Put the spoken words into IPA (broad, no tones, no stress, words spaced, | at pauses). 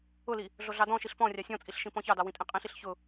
ʊli | ɮoɮɑdɔ̃ʃiɬ pɔ̃rʲɑ sʲɔ̃t͡sʼiɬ ʃĩpɔ̃çɑdɑ wĩtʼĩqʼĩɬiɬ çʊ